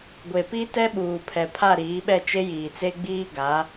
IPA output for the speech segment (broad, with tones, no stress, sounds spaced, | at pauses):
ɡʷ e˨ p i˦ t ɛ˦ ɓ uː˨ pʰ ɛ˨ pʰ a˦˨ ɾ iː˨˦ ɓ ɛ˦˨ t͡ʃ e˦ j iː˨ t͡s e˦ ɡ͡b iː˦ ɡ a˨˦